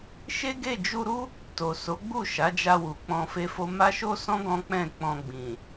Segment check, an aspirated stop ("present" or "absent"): absent